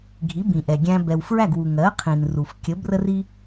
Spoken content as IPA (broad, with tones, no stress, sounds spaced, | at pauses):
ɡʱ i˩˥ b ĩ˩ ʔ ɛ˩ ɡʲ æ̃˧ b ɛ˩ w f ɹ æ˥˩ ɡ w u˩ ŋ ɜ˩˥ qʰ ĩ˩ n r u˩ f kʲ ə˩˥ b r ə˥ r i˥